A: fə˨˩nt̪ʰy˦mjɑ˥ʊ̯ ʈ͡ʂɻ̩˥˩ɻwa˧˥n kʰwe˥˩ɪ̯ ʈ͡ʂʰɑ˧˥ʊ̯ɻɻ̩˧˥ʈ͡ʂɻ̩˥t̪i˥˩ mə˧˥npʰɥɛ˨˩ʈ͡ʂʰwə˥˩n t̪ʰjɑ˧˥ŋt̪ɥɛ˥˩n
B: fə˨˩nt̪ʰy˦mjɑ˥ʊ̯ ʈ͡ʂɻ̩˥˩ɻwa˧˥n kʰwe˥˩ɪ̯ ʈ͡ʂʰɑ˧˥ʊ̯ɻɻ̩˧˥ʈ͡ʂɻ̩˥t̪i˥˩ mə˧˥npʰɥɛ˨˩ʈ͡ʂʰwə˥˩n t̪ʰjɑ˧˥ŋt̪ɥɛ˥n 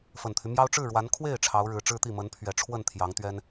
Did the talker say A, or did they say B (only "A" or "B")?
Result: B